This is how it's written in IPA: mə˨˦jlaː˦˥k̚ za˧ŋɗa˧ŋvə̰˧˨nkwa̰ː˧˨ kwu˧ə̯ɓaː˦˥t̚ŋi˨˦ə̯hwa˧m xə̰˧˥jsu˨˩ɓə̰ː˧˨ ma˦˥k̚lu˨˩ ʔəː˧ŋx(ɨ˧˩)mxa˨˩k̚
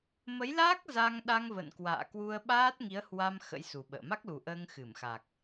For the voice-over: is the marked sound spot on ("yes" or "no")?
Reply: yes